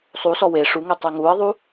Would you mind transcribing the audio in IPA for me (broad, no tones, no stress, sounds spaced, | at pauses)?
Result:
sˤ u s ɔ w e ʂ u ŋ ɛ tˤ ɛ ŋ u ə̯ ðˤ u